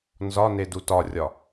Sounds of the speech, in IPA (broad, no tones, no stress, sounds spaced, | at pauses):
n z ɒ n e d u t ɒ rʲ ɒ